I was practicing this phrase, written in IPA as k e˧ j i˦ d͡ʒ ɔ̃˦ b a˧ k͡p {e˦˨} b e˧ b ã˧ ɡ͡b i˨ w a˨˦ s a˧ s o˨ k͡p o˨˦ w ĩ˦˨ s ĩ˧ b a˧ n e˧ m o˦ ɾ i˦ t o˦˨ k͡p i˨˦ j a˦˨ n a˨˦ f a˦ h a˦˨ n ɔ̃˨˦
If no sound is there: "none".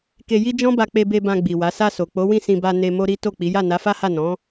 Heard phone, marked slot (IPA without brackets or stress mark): e˧